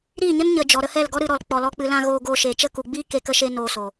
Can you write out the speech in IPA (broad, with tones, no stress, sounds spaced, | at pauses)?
ɾ iː˦˨ ɲ ə˦ n ɲ ə˨ d͡ʒ ɔ˨ ɾ ə˧ h ɛ˦˨ l ɡ ɔ˦ ɾ ɨ˧ ɾ ɔ˨ l k͡p ɔ˨ l ɔ˧ k͡p ɨ˨ l ã˧ ɣ oː˧ ɡ oː˧ ʃ e˨ t͡ʃ ə˦˨ k u˨ ɡ͡b iː˦ k e˨˦ k ə˧ ʃ e˧ n oː˨ s oː˨